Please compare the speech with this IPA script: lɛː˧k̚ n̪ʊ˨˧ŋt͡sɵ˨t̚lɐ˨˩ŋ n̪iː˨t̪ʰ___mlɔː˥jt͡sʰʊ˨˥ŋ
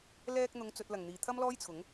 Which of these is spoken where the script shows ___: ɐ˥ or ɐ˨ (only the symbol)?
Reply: ɐ˥